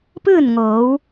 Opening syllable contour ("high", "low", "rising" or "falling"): falling